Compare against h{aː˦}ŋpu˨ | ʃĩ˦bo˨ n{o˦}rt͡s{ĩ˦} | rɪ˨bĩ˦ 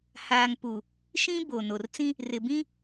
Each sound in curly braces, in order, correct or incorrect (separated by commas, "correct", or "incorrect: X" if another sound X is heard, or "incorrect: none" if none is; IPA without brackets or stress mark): incorrect: aː˨, incorrect: o˨, correct